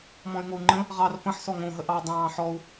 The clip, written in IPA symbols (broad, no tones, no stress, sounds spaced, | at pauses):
m ɔ̃ y̯ ŋ o u̯ ŋ͡ǃ ə̃ | ʁ ɑ r p ə̃ ħ s ɔ ŋ õ ɦ ə ʔ ɑ dˤ ɑ̃ː ħ ɔ u̯